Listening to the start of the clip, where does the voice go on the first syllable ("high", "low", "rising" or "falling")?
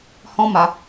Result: high